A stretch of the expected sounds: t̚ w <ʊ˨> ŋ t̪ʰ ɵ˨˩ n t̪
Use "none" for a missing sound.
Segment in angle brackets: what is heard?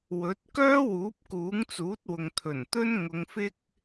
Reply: ʊ˨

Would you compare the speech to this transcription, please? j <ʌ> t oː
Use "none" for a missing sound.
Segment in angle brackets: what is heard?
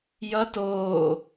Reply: ʌ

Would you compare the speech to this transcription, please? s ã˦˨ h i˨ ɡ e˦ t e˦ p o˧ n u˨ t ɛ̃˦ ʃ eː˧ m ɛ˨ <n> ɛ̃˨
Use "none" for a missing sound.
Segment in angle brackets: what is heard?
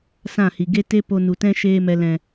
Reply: l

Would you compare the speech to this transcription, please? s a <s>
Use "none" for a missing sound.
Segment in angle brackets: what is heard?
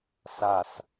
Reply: s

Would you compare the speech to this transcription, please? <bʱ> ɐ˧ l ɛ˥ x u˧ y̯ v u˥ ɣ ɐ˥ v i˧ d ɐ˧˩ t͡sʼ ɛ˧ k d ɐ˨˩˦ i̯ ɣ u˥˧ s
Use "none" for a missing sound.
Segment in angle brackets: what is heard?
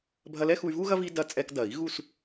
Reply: bʱ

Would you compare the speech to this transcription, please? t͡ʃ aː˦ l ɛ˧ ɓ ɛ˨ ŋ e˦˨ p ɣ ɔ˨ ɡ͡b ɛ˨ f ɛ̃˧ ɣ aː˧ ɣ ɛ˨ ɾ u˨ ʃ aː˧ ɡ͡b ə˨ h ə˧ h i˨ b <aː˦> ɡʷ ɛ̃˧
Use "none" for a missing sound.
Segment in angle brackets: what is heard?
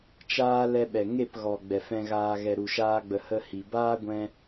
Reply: aː˦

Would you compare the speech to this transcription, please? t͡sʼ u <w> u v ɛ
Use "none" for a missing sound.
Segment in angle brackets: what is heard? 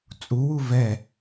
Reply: w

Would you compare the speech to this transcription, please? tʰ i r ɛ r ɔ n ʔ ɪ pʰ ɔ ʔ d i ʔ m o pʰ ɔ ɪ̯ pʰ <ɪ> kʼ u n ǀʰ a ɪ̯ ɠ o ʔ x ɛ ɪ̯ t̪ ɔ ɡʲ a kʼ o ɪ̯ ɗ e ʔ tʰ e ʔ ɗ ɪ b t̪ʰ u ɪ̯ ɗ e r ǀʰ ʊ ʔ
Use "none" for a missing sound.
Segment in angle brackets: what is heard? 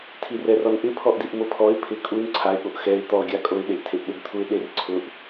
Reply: ɪ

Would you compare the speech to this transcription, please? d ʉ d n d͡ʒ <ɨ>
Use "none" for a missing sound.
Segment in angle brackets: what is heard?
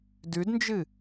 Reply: ɨ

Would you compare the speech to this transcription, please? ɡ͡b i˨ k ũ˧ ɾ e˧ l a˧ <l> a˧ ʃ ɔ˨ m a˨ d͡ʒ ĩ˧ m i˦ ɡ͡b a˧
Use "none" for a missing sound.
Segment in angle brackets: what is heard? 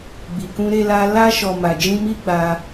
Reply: l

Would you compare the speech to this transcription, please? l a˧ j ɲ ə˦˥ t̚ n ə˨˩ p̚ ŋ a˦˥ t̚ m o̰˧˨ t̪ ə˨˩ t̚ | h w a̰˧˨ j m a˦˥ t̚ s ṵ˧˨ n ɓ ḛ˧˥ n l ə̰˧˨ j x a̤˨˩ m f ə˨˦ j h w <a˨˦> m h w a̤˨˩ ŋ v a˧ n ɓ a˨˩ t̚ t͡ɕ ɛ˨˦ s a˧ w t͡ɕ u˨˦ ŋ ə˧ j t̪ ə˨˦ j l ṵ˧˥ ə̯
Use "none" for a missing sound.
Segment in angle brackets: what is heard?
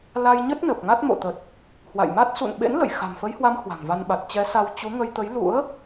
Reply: a˨˦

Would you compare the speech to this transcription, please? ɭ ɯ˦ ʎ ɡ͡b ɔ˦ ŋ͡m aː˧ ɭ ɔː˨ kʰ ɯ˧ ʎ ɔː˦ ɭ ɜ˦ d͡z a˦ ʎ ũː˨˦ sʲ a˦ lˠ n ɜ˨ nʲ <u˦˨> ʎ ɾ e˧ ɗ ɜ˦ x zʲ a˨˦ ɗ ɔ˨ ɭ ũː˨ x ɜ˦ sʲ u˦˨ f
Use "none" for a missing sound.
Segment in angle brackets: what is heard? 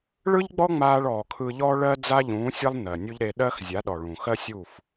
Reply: u˦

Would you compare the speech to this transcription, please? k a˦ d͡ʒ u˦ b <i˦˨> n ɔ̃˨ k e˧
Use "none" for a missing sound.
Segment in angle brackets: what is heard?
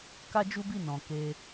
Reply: i˦˨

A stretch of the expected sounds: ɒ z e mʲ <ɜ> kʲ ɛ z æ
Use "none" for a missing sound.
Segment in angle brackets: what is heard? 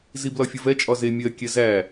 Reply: ɜ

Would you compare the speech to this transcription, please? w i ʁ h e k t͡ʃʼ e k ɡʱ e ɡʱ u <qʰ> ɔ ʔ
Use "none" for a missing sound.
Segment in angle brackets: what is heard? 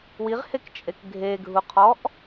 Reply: qʰ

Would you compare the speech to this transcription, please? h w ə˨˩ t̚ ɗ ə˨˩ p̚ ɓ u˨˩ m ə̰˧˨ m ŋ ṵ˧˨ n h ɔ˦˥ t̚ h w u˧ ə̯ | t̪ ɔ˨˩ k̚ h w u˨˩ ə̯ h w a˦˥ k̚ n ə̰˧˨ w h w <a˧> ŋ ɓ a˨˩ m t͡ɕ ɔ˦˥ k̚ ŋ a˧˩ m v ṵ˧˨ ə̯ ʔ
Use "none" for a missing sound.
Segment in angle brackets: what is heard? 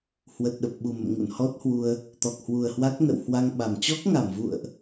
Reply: a˧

